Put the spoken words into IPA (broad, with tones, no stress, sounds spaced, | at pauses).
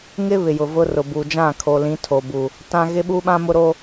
ŋ ɪ˦ β ɪ˨ j ʊ˨ v ʊ˦ r ʊ˨ b u˨ d͡ʒ ã˦˨ kʰ oː˨ l ĩ˨˦ tʰ o˨ b u˨ | t ã˦ ɣ ɪ˦ ɓ u˦ ɓ ã˦ m ʊ˦ ɾ o˦